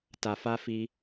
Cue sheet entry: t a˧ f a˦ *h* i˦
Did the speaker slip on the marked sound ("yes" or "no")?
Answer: yes